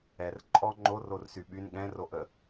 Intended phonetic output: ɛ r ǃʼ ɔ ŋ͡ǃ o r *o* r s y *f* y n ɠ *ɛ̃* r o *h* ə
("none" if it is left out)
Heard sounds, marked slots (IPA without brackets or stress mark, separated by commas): o, ɓ, ɛ̃, ʔ